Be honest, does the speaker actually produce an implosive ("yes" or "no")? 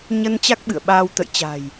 yes